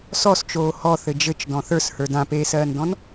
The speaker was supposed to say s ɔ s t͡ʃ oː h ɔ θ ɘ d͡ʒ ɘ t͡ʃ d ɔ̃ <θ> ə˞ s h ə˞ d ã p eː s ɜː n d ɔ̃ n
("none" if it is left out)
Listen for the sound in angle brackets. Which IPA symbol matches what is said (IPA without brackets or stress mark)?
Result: θ